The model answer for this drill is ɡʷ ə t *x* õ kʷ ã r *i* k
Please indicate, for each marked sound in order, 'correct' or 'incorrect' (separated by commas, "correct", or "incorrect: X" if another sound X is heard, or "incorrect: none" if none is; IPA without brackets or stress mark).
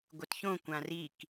incorrect: ç, correct